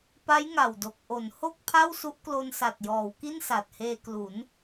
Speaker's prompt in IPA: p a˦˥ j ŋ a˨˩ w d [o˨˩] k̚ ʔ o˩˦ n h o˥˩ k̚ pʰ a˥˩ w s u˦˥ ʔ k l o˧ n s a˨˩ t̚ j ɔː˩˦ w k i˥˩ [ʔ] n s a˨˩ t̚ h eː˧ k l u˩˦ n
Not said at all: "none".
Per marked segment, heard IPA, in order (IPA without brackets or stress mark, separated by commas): o˨˩, none